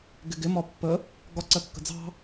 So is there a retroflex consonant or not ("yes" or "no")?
no